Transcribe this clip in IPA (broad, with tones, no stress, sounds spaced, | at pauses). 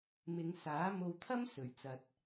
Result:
m ɪ˨˧ ŋ s aː˨˥ m o˧ w t̪ʰ ɐ˥ m s ɵ˨˩ ɥ t͡s ɐ˨ t̚